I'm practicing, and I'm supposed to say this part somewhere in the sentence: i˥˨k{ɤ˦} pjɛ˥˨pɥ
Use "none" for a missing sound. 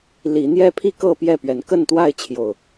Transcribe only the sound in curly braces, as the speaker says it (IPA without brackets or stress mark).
ɤ˥˨